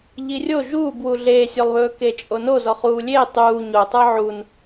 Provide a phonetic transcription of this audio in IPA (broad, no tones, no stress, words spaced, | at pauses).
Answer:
ʎirʲo ʒuːbwu ɮeːsʲolˠβɵː ket͡ʃʼono zɔχuːlʲeː tˤuː ɲotˤə˞ ʕun